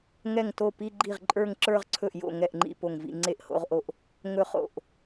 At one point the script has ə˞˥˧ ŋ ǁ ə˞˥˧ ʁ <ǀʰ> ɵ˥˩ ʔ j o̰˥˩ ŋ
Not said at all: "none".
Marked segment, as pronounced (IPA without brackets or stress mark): ǀʰ